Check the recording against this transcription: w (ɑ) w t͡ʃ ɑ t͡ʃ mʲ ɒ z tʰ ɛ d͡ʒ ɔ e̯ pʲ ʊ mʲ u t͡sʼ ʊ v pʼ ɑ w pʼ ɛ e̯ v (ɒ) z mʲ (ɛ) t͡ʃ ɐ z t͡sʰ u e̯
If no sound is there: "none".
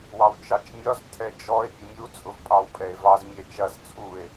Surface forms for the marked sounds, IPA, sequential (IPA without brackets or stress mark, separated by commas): ɑ, ɑ, ɛ